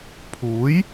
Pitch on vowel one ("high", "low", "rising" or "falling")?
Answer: rising